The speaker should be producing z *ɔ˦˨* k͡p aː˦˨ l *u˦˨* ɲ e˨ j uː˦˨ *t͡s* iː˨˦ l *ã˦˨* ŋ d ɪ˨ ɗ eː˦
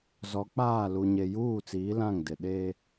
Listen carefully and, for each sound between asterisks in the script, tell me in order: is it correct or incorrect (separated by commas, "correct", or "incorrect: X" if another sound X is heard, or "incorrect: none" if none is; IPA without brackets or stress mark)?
incorrect: ɔ˨˦, incorrect: u˨, correct, correct